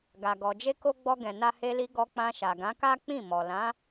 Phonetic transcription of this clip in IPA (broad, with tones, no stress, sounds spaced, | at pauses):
ɡ a˨ ɡ ɔ˨ d͡ʒ e˧ k o˧ ɡ͡b ɔ˧ ɡ ɛ̃˨ n a˧ h e˧ l i˧ ɡ ɔ˧ k͡p ã˧ ʃ a˨ ɡ ã˨˦ k a˦ k͡p ĩ˦˨ m ɔ˨ l ã˨˦